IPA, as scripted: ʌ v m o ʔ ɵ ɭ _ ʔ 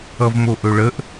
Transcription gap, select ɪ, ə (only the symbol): ə